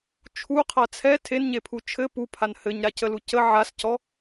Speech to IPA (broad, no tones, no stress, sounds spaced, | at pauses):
t͡ʃʰ u qʰ a t͡sʰ ɛ tʰ e n ɲ e pʰ u t͡ʃʰ ɘ p u pʰ a n h ɘ ɲ ɾ a c ə l u c ə ʕ a s c ɔ